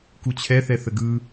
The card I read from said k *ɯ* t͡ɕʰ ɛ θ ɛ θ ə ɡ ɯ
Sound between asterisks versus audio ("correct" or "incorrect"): incorrect